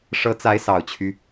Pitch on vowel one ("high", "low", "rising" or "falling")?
rising